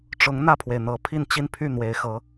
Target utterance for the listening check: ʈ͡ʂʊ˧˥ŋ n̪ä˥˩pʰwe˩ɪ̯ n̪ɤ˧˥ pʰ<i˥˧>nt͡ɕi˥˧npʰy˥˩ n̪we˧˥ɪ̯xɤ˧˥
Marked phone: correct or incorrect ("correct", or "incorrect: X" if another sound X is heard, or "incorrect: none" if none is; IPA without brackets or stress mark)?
correct